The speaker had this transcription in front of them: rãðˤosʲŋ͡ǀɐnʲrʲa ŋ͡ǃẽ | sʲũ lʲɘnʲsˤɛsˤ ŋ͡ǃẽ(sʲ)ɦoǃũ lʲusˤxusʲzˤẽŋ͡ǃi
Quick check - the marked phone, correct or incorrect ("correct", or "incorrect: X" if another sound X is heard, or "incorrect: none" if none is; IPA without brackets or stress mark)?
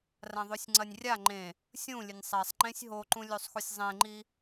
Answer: correct